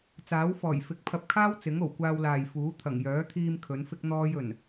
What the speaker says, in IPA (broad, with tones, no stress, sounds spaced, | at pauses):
t͡s aː˨˥ w f ɔː˨˩ j f ɪ˨˥ k̚ pʰ ɐ˧ p̚ kʰ aː˥ w t͡s ɪ˨˥ ŋ o˨˩ w kʷ aː˧ w l aː˨ j f uː˨˥ t̪ʰ ɐ˨˩ ŋ j œː˨˥ t̪ʰ iː˧ m kʰ ɵ˨˥ n f ɪ˥ k̚ n̪ ɔː˥ j ɵ˨˩ n